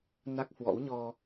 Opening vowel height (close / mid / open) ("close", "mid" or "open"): open